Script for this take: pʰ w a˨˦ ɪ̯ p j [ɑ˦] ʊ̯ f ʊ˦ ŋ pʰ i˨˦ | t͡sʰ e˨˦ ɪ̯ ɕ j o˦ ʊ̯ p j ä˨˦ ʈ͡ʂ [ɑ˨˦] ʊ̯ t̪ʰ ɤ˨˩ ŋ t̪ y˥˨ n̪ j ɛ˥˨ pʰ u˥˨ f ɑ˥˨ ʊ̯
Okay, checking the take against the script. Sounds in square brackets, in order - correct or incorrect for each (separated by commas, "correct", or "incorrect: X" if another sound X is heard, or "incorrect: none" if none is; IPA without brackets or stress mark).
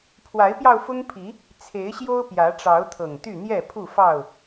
incorrect: ɑ˧, correct